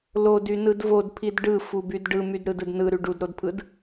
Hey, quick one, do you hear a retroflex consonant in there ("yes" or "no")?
yes